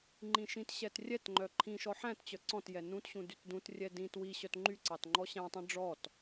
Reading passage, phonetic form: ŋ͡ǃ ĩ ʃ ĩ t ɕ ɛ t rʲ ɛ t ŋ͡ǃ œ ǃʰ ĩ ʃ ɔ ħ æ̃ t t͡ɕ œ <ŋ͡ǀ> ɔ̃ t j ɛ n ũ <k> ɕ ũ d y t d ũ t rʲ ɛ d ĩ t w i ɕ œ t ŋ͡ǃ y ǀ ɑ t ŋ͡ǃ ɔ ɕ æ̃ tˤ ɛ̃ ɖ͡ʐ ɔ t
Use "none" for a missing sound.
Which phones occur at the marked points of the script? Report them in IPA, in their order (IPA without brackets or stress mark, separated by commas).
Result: ǀ, t